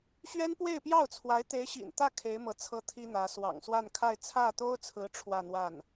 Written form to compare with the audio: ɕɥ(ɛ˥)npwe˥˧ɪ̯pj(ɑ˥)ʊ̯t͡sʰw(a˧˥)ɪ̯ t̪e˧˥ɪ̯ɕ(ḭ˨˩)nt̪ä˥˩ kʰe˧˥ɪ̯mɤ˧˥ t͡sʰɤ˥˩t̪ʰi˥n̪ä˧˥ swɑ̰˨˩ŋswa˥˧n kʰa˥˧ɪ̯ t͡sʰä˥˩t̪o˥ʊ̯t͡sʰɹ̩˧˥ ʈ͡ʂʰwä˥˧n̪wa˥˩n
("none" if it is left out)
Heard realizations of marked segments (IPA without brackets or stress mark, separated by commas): ɛ˥, ɑ˥˩, a˧˥, ḭ˨˩